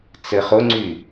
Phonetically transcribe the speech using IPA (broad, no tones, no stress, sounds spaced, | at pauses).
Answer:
t͡s ɘ χ ʊ ŋ͡ǀ y